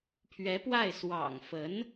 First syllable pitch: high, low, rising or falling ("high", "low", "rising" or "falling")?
rising